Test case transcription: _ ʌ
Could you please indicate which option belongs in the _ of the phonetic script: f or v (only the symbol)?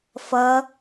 f